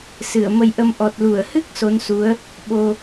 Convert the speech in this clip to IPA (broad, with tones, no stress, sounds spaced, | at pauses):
s ɨ˧˩ ə̯ m ə˧ j ʔ ə˧ m ʔ ɔ˨˩ t̚ l u˧˩ ə̯ h ɨ˦˥ k̚ s o˨˦ n s u˨˦ ə̯ | ɓ o˧